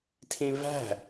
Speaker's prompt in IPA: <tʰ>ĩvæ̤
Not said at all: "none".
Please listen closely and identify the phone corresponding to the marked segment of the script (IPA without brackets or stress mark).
tʰ